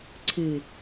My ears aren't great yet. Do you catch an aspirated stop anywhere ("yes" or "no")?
yes